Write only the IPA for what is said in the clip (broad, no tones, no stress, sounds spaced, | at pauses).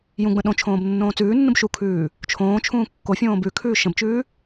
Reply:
j ũ ɡ͡b ə̃ ɗ õ t͡ʃʰ õː b nː õː t͡s ʉː nː ũ b ʃ u kʰ ʉː | t͡ʃʰ õː t͡ʃʰ ũː kː o fʲ õː b ʉ kʰ ʉː ʃ ə̃ b t͡ʃ ʉː